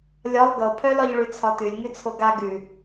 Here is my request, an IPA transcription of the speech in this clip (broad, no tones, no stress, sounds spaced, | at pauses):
lʲ ɒ lˠ ɡ ɤ pʰ œ l ɒ ʎ ɭ ʉ t͡sʰ ɒ t ʉ lʲ ŋ ʉ t͡sʰ o ɡ a ɡ ʉ